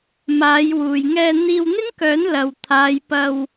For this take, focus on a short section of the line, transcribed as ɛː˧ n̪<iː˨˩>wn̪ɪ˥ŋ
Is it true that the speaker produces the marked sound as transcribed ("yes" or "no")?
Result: no